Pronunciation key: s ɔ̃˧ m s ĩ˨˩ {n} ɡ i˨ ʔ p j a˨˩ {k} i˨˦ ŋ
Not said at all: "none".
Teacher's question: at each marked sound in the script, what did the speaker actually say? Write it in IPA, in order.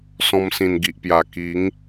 n, k

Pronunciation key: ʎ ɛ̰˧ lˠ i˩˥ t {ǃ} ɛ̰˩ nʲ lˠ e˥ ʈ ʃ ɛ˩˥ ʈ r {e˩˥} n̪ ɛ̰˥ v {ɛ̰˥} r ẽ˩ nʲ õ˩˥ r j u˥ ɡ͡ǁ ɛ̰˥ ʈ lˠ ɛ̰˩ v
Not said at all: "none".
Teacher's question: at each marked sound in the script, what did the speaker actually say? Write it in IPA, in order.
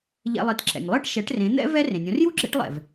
ǁ, ẽ˩˥, ɛ˥

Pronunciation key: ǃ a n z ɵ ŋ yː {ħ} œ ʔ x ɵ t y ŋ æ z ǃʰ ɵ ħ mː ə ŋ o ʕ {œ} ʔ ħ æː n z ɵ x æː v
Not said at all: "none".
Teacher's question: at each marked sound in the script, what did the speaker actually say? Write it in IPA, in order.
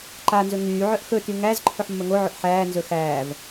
ʕ, ɵ

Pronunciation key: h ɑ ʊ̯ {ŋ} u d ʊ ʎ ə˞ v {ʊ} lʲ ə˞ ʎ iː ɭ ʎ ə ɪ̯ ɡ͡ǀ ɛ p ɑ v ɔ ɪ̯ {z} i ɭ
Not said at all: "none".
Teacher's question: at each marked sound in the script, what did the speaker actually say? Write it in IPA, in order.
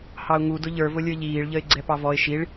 ŋ, ʊ, ʃ

